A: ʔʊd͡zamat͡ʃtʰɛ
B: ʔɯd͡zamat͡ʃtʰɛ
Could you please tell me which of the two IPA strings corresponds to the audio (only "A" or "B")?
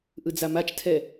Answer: B